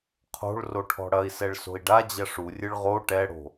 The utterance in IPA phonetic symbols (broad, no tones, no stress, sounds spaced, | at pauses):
qʰ o̤ ɭ r o ʈʰ ɔ̤ ɽ ɐ i̯ s ɛ ɭ s o̤ i̯ ɖ a d͡ʑ ɐ ʂ u rʲ ɨ ɭ ʁ o ʈ ɛ ɽ o̤